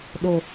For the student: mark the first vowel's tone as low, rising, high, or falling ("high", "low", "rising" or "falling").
low